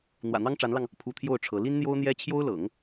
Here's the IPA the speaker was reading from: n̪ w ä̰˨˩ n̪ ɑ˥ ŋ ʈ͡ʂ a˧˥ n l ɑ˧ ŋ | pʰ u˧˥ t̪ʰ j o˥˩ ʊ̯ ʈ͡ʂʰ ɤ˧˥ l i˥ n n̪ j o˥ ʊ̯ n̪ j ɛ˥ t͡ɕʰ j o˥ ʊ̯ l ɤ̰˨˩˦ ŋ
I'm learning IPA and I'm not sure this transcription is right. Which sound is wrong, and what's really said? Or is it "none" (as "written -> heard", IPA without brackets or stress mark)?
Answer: none